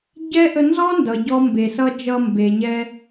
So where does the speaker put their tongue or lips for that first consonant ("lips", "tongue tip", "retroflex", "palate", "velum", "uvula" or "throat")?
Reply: palate